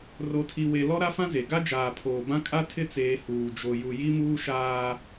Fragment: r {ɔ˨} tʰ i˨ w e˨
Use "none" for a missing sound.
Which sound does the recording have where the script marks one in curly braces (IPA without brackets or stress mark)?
o˨